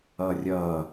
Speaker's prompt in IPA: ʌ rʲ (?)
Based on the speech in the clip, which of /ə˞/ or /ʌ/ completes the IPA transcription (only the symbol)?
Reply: ʌ